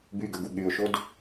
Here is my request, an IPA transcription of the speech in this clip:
b y ɡ ə ɡ u ɠ y ʊ̯ ʃ o d

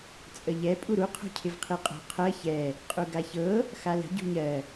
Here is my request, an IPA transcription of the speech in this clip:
t͡sʼ ə ʎ ɛ pʼ u ɾ u qʰ o̤ cʰ ɪ v qʰ i qʼ o̤ qʰ ɜ ç ɛ | qʼ u ɡ a ç ɤ | x a l ə̤ ɟ ṳ ɲ ɜ

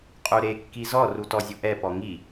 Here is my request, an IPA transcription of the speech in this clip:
qʼ u ɾ e kː i z ɔ r u t ɔ zʲ u ʔ ɛ p ɔ ŋ i

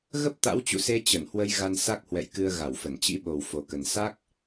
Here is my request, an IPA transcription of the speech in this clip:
ɣ ə˦˥ p̚ t̪ a̰˧˥ w t͡ɕ ṵ˧˨ s e˧ t͡ɕ ə˧˩ n h w ə˧ j ɣ a˧ n s a˦˥ k̚ h w ɛ̰˧˨ j k ɨ˧ ə̯ ɣ a˧˩ w f ə˧˩ n t͡ɕ ḭ˧˥ ɓ o˨˩ w f o˨˩ k ə˨˩ n s a˦˥ k̚

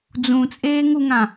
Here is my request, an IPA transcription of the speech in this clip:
d͡z ũ t͡sʼ eː ŋ u ŋ ã

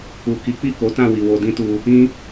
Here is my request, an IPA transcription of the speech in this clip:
u˨ k i˨˦ k͡p i˦˨ k o˨˦ t ã˦˨ w i˨ w o˧ d ĩ˦ t u˧ | ĩ˦

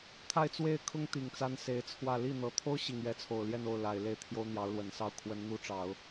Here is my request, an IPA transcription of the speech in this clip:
t̪ʰ a˥˧ ɪ̯ t͡s w e˥˩ ɪ̯ kʰ ʊ˥ ŋ t̪ i˨˩ ŋ t͡s a˥ n s e˧˥ ɪ̯ t͡sʰ w ä˥˧ l i˥˩ n̪ ɤ˧˥ t̪ʰ o˥ ʊ̯ ɕ i˨˩ ŋ ɥ ɛ˧˥ t͡sʰ o˨˩ ʊ̯ l j ɛ˥˧ n o˥˩ ʊ̯ l a˨˩ ɪ̯ l e˥˩ ɪ̯ t̪ʰ j o˥ ʊ̯ n̪ j ɑ˧˥ ʊ̯ l w ə˨˩ n s ɑ˥˩ ʊ̯ kʰ w ə˧˥ n n̪ u˧˥ ʈ͡ʂ ɑ˨˩˦ ʊ̯

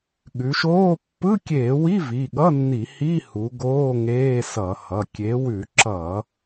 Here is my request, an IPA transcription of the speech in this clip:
ɠ ʉ˩˧ ʃ oː˧˥˧ pː ɯ˧˥˧ kʲ eː˧˩˧ w i˧˥˧ v i˩˧˩ ɠ ʌ˧˥˧ nː i˧˩˧ h i˧˥˧ h u˩˧ ɡ oː˧˥˧ ŋ eː˧˥˧ s ʌ˧˩˧ h ʌ˩˧˩ kʲ e˩˧ w ʉ˧˩˧ ǁ ʌ˧˩˧

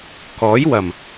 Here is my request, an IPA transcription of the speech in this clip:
k ɔː˨˥ j w ɐ˨˩ m

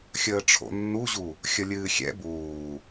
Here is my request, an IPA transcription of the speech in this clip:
xʲ əː ʈ͡ʂʰ o̰ nː u ʑ u | xʲ ə lʲ ɨː xʲ ɛ̰ b uː

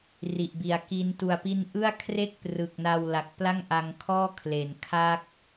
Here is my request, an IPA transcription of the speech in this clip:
r i˨˩ ʔ b i˨˩ a̯ k i˦˥ n t u˨˩ a̯ p i˦˥ n ʔ ɯ˥˩ a̯ kʰ r e˥˩ k̚ p r ɯ˨˩ k̚ n a˧ w l a˨˩ k̚ p l a˥˩ ŋ ʔ a˧ ŋ kʰ ɔː˥˩ kʰ l e˩˦ n kʰ a˦˥ k̚

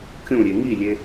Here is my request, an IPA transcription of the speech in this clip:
kʲ ũ ɾʲ e ŋ i lʲ e

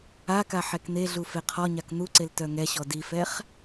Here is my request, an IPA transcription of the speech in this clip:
a k a ħ ɛ k n̪ e ɮ u f e qʰ ɔ ɲ a k n̪ u ǀ e l t œ ŋ ɛ ɕ ɔ d i f ɛ χ

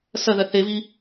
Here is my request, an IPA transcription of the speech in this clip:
s ɐ ð ɐ θ e v i

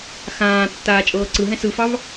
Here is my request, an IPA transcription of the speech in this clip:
x ãː tː aː t͡ʃʼ ɤː ǀ ɯ ɦ ɛ̃ s ɯ f ɑ v

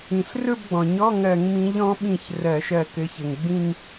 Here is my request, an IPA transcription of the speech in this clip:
ĩ˩ ɬ r ɵ˥˧ b ɡ͡b ɔ̃˩ ɲ ɔ˧˥˧ ŋ ɜ˧˩˧ ŋ m ĩ˨˦ ʎ ɔ̃˨˦ ɓ ĩ˧˩ ç r ɜ˧˩˧ ʃ ɜ˧˩ k ɘ˨˦ ç ɘ˩ ŋ ɡ͡b ĩ˥˧ ŋ

